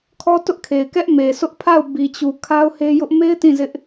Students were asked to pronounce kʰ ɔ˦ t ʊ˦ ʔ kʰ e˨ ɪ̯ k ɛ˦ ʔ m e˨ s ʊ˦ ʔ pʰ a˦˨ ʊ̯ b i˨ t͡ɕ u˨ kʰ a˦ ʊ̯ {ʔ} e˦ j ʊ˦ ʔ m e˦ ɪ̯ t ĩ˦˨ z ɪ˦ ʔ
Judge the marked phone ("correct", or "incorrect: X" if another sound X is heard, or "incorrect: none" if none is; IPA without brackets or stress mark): incorrect: h